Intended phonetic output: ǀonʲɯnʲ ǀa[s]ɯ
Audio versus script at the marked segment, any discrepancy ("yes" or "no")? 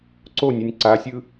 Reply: yes